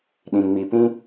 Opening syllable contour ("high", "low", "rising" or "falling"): low